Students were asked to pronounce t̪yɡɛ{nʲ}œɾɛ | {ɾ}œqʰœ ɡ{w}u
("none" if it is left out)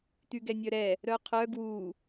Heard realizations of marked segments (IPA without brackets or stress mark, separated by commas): nʲ, ɾ, w